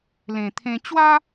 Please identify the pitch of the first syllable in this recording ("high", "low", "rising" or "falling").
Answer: low